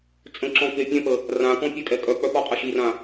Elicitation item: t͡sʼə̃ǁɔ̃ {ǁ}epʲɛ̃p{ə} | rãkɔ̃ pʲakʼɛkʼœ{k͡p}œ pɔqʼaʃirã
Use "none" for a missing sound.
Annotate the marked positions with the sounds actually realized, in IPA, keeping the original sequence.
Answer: k, ə, k͡p

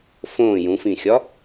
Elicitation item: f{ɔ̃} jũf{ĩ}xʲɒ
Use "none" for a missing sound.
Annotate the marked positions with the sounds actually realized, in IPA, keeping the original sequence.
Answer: õ, ĩ

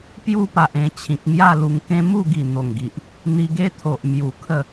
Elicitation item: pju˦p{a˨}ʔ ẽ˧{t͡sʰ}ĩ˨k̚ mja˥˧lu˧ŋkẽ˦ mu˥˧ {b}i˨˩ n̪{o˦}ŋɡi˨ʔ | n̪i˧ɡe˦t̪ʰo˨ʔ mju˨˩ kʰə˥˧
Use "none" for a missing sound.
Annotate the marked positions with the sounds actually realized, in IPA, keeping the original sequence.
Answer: a˨, t͡ɕʰ, ɡ, o˨˩

